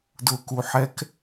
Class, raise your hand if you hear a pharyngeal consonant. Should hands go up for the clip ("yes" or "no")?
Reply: yes